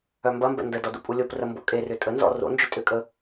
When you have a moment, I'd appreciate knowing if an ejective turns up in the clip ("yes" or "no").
yes